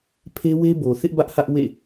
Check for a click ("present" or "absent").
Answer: absent